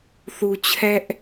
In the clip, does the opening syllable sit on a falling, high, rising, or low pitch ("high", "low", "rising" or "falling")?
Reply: low